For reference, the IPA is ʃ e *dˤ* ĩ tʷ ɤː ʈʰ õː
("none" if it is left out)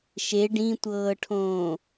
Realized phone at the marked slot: ɖ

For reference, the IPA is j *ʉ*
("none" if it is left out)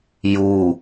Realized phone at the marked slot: u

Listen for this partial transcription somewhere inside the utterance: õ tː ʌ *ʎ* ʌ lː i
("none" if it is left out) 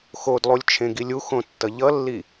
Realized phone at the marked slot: ʎ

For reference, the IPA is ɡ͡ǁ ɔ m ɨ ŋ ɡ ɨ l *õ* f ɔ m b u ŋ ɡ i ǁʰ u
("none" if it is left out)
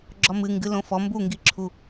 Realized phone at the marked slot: õ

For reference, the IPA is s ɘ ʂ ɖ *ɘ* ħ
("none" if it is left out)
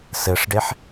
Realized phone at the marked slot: e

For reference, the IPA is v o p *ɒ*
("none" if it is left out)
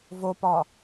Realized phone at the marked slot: ɒ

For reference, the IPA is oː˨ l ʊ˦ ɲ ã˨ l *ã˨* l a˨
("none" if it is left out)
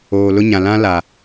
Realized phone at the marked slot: ã˦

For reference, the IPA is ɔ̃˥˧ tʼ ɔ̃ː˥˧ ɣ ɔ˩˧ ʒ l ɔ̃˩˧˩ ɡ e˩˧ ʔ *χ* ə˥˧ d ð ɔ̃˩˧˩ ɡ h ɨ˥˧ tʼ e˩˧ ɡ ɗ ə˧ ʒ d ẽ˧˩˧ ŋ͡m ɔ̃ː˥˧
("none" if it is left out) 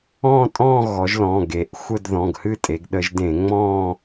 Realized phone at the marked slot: xʷ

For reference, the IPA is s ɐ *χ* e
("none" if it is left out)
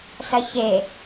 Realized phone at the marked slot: ç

